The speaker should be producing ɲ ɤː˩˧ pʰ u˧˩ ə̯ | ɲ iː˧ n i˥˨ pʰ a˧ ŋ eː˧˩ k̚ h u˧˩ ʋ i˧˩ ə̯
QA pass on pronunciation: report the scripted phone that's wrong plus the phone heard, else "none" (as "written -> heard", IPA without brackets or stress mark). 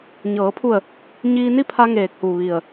none